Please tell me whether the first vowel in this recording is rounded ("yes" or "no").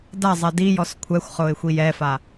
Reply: no